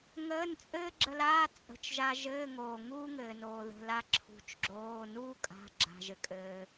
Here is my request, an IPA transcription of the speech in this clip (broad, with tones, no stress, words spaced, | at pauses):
ŋəː˧˥˧n t͡sʼɘː˥ɡ͡ǁə˧laː˧˥˧ t͡sʼə̤˩˧˩t͡ʃ ʒa˧ ʒɘː˧˥˧ŋoː˩ŋuː˥ ŋɘː˩noː˩ðə̤˩˧˩ la˧ ǁʰṳ˩t͡ʃɡ͡ǁoː˩˧˩ nuː˥kʼa̤˩˧˩ ɡ͡ǁa̤˩ʒɘ˩kʼɘː˩